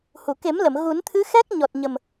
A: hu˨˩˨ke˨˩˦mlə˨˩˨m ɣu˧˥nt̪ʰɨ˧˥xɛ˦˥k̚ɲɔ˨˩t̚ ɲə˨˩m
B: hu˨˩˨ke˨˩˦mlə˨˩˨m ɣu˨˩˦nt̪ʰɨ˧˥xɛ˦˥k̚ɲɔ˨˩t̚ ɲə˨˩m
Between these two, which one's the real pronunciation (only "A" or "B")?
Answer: B